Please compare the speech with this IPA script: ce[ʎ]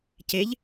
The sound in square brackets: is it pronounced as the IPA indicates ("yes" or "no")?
yes